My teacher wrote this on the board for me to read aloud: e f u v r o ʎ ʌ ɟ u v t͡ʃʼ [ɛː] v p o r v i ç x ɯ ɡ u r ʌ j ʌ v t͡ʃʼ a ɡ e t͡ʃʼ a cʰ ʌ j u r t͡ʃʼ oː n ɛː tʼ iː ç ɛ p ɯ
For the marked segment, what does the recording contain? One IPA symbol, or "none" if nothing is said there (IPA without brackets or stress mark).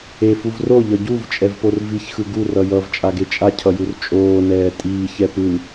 ɛ